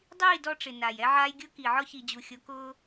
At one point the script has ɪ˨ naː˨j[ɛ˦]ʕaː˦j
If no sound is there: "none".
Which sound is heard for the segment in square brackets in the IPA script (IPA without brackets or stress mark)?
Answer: ɛ˦